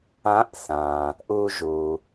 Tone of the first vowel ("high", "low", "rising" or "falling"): rising